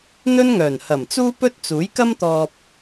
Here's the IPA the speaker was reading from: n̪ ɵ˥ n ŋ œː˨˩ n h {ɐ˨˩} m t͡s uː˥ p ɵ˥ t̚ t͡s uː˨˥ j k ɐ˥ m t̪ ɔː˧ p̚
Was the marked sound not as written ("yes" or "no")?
no